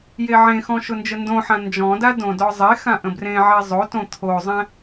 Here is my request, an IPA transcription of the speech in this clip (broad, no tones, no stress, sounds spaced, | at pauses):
j e ʕ ẽ x ɔ̃ ʃ ʊ n d͡ʒ ə n d õ ħ ã n d͡ʒ ɔ̃ d a d õ d ɔ zˤ e x ã ʔ ə̃ b r ẽ ʕ e zˤ o t õ t̪ʰ o zˤ ɛ̃